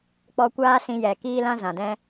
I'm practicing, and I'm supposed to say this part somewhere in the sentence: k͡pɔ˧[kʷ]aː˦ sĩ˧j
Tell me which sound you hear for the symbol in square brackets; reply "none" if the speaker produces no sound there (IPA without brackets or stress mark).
kʷ